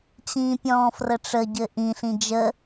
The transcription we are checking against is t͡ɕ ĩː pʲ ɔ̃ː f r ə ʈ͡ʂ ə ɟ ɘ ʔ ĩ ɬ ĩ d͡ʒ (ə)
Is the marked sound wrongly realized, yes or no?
no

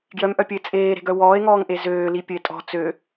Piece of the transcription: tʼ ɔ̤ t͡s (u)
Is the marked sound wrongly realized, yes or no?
yes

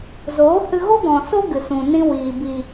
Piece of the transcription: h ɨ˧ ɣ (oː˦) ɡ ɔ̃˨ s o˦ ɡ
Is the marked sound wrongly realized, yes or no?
yes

